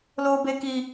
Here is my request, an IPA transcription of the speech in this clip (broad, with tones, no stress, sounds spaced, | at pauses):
l oː˦ b e˦ k i˦